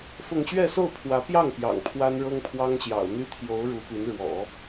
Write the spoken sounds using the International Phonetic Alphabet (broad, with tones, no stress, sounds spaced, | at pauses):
f ʊ˥˧ ŋ ɕ ɥ ɛ˥˧ s o˥˩ ʊ̯ pʰ w ä˧˥ p j ɑ˥˩ ŋ p j ɑ̰˨˩ ŋ pʰ w a˥ n ɻ ɤ˥ ŋ pʰ w ɑ˥ ŋ ɕ j ɑ̰˨˩ ʊ̯ n̪ y˥ t̪ʰ j o˧˥ ʊ̯ ɻ u˧˥ p y˧˥ n ɻ w ɔ̰˨˩˦